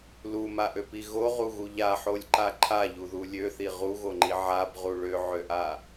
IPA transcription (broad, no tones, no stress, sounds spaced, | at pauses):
l u m a ʔ ø p i ɣ o ʁ u ɣ u ʎ a ħ o lʲ ǃ a ǃʰ a ʎ u ð u lʲ ø θ i ʁ u ɣ o ŋ͡ǃ i ʕ a b ʁ u ɭ ø ʕ ø ʔ a